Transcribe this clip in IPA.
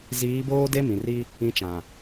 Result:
z iː˨˦ b oː˦ d e˦ m ĩ˨ r i˦ | ĩ˨˦ t͡ʃ ã˨

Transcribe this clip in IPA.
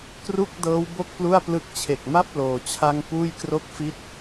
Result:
k r u˥˩ k̚ d ɤː˦˥ w b o˥˩ k̚ p l u˥˩ a̯ p l ɯ˦˥ k̚ t͡ɕʰ e˨˩ k̚ m a˥˩ p̚ l oː˧ t͡ɕʰ a˥˩ ŋ p uː˥˩ j k r o˥˩ k̚ f i˥˩ t̚

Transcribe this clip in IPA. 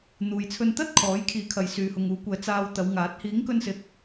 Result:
n̪ uː˨ j t͡sʰ ɵ˧ n t̪ ɐ˥ t̚ kʰ ɔː˨˥ j kʰ iː˨˥ kʰ ɐ˨ j s yː˨ h ʊ˨ ŋ uː˨˥ kʷ ɛː˨ t͡s aː˧ w t̪ ɐ˨˧ w ŋ aː˨˥ t̚ h iː˨˥ ŋ k ɵ˧ n s ɪ˨ k̚

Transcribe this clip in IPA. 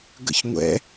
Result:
ɡ ə̰ ç ŋʷ ɛ̰

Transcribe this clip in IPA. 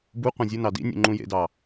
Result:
b u qʷ ẽ zʲ ɯ n ɑ d ḭ nʲ ṵ ŋ͡ǃ ũ j ḛ d ɑ

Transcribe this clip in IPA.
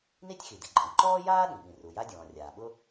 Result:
n i˥ tʲ x i˩ d ɪ˩ ǃʼ ĩ˩ ǃ ɔː˥ j aː˥ ɗ ĩ˩ ɓ ĩ˩ r u˩ j a˥ dʲ ɔ̃ː˩ rʲ aː˩ ɓ ʊ˥

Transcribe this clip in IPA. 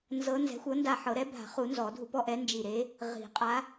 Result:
n z ɤ˧˥ n z ɛ̤˩˥ xʷ ɤ˩˥ n d a˧˩ ħ ɤ˨˩˦ ɾ ɛ˧˥ bʱ a̤˨˩˦ χ u˨˩˦ n z ɔ˨˩˦ dʱ u˧ p ɔ˥˨ ʔ ɛ˧˥ n d͡ʒ i˧˩ ɾ e˧˥ | ʁ i̤˨˩˦ qʼ a˧˥

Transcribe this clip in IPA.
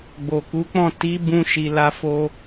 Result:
ɡ͡b o˨ k u˨˦ k͡p ɔ̃˦˨ t i˨˦ b ũ˧ ʃ i˨ l a˧ f o˧

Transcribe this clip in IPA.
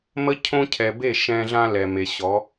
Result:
m ə˦ cʰ õ˦ cʰ ɛ˨ b e˦˨ ʃ ɛ̃˦ ɮ ã˦ l ɛ˨ m e˨ ɕ ɔ˨˦

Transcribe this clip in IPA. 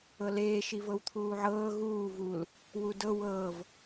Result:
ɤ l eː ʃ i v ɤ w t̪ʰ uː ʕ ɤː ɣ uː v u l | w u d ɤ w ɤː v

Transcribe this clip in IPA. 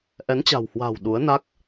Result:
ʔ ɛ˨˦ n t͡ɕ a̤˨˩ w h w a̤ː˨˩ w ɗ u˨˦ ə̯ n a˦˥ k̚

